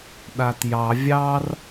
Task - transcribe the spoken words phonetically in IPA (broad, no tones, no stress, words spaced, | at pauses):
ɗatjɑ vʲɑr